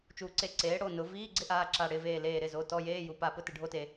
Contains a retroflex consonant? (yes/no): yes